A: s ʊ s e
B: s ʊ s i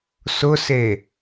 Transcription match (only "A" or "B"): A